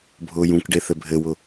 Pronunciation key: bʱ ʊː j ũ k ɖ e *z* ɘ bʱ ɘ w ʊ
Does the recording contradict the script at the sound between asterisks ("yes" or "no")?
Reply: yes